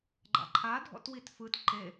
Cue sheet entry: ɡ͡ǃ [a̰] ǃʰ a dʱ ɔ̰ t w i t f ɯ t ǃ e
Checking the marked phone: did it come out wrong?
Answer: no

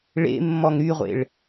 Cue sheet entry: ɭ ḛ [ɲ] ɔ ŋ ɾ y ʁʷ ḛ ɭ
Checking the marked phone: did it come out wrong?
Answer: yes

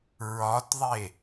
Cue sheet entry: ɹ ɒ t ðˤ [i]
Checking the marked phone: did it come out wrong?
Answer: yes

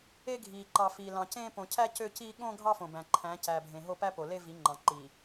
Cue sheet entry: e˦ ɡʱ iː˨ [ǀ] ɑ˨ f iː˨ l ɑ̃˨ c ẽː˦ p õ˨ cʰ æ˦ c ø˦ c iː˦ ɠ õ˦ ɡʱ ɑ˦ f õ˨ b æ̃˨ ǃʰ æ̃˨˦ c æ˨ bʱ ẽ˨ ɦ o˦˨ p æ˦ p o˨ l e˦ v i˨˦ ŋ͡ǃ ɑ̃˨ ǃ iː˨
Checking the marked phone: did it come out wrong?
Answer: yes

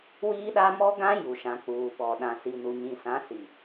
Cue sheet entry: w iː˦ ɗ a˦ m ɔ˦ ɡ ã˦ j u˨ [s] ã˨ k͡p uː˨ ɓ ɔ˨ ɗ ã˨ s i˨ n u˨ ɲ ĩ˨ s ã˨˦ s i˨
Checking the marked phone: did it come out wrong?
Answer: yes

